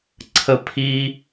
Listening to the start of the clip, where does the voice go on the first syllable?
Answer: high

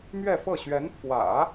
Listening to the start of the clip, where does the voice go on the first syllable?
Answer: falling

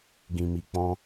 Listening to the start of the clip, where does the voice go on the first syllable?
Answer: low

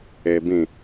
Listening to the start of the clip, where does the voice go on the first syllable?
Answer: low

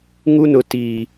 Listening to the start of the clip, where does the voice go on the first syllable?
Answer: high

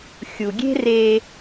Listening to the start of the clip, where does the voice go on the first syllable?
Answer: low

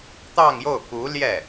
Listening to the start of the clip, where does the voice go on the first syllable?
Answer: falling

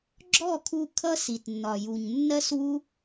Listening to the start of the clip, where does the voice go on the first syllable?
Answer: falling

